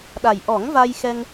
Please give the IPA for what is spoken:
ɗa˨˩j ʔɔ˨˩˦ŋ va˧jxɛ˧ŋ

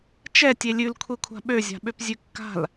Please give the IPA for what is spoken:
t͡ʃɛ tʲelʲʉl kʷʰekʷʰa̤ɓø zʲa̤ɓøpzʲʉkːa̤l

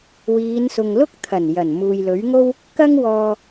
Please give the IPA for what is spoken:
wiː˨˧nsʊ˨ŋlʊ˥k̚ t̪ʰɐ˨˩njɐ˨˩n muː˨jlɵ˨˥ɥŋo˥w | kɐ˥ŋwɔː˧

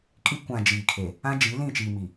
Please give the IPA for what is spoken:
kʼi˦kʷã˨ d͡ʒiː˨kʰe˨ | ã˦d͡ʒi˨˦ lĩ˦˨t͡ʃiː˨mi˨

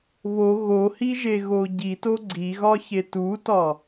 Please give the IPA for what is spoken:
βo ɣohiʒe ɣoɟito ɡ͡ǀiɣɒçe tutɒ

